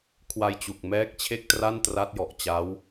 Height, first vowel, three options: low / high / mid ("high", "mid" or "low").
low